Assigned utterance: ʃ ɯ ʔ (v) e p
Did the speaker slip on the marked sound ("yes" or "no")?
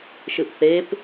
yes